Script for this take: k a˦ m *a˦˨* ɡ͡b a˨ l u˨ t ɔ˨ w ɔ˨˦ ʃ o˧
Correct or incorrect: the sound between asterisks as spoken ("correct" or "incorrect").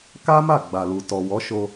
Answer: correct